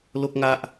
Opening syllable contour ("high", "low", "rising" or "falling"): high